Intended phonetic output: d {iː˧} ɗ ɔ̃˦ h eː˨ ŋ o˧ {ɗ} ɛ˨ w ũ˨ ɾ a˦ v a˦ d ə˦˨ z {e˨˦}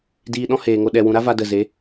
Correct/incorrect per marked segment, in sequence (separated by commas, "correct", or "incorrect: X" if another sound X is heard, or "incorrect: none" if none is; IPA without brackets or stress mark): correct, correct, correct